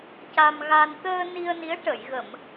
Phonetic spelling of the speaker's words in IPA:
ca˧mɣa˧n t̪əː˧ ni˧ə̯ni˧˥ə̯ ʈə˨˩˨jɣə˨˩˨m

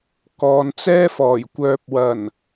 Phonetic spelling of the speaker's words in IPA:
kɔː˨nt͡sɛː˥fɔː˨˩j kʷœː˨p̚wɐ˨˩n

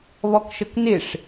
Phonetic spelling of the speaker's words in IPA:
βɔkʃəknɪʂ

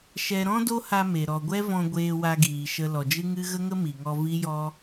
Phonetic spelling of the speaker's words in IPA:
ʃɛ˧ ɾɔ̃˦do˦ha˧ me˨ ɾɔ˨ɡʷɛ˦vɔ̃˧ ɡʷeː˧wa˧ɡiː˨ʃə˧ lɔ˨d͡ʒɨ˦ŋɨ˦ ɣə˦ŋə˦mi˨ŋɔ˧ vi˦jɔ˦

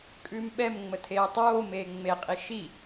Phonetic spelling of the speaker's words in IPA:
kʼʉːmɓɛmŋ͡mə tʰeːtˤoːmeː ŋ͡meqʼi ʃi

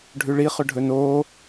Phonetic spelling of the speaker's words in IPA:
ɖʱʉɭi χɵɖʱɵnoː

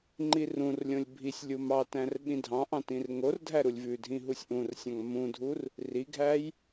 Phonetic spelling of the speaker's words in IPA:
ŋ͡ǃirũrlʲõlʲ bʱisʲ lʲumɑtæ̃r ɓĩdʱɑ̃ʔɑ̃ tĩrŋordʱæ ɾulʲvʉdʱĩ ɦusʲʔũrsʲɑ̃ŋ mũdʱur | riɡʱæj

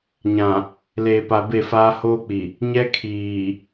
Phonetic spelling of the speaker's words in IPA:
ɲã˨ | leː˨pa˨be˦˨faː˦ hoː˦k͡pi˨ | ɲɛ˦kʰiː˨

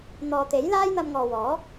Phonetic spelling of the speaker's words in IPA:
n̪ɔː˨t̪e˨˥j laː˥jn̪ɐ˧mŋɔː˨wɔː˨˥

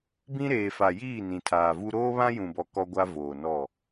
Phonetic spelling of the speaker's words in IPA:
bĩ˦ɾeː˨ fa˨jiː˦˨ nĩ˨tʰaː˨vu˦ ɾoː˦βã˦jũ˨bɔ˨ kɔ˦ɡʷa˦voː˨nɔ˦˨

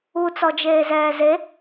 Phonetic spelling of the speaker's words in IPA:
u t͡sɔd͡ʒeːzɛːze

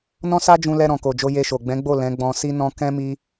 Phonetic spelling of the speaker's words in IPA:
nɔ̃˦sa˦d͡ʒũ˧lɛ˧ ɾɔ̃˨ko˨d͡ʒo˧ je˧ʃo˨ ɡ͡bɛ̃˨˦ɡ͡bo˦˨ lɛ̃˨˦ɡ͡bɔ̃˧ si˦nɔ̃˦ kɛ̃˦mi˦

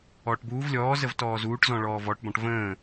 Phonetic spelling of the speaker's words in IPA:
ɔːʈbuːv lʲɔː zəvtɔːzuːʈ zɔ̃ɭɔːvɔʈ bɔ̃ʈvə̃ː

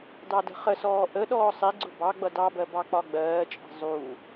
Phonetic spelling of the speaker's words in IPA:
dɑdə̤χəsɔː ʔə ɗɔːsˤiɡ͡ǀʊ bɑ ɡ͡bʌdɑbɜ bɑk͡pɒɡ͡bɜːt͡ʃʼɛ̤ zˤu

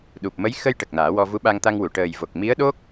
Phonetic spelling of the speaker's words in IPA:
ɗu˨˩p̚mə˧˥j xə˧j ʈə˨˩k̚naː˨˩˦wɔ˧ vu˧˥ɓa˧ŋt̪a˧ŋwu˨˩˨ ʈəː˨˩jvo˨˩k̚ mi˧˥ə̯ɗo˦˥k̚

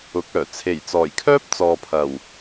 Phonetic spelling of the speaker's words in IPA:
ʊ˨˥k̚œː˨˩ t͡sʰe˨˩jt͡sɔː˨˩jkʰœː˥p̚ t͡sɔː˨pʰɐ˨˩w

